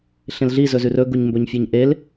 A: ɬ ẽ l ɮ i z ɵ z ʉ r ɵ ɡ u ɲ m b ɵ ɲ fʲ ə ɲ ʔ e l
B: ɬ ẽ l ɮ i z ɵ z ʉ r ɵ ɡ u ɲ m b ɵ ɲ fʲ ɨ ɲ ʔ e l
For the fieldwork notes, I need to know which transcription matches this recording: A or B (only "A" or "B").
B